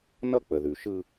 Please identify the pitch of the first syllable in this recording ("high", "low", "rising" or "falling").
high